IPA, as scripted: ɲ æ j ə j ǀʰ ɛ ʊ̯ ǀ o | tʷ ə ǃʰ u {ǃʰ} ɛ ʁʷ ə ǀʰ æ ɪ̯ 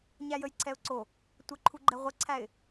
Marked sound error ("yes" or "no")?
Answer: yes